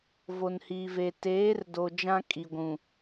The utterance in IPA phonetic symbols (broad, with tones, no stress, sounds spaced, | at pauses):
v o˨ n h iː˨ v e˨ t eː˨˦ r d o˨ d͡ʒ ã˦ kʼ i˨ ɡʷ ũ˨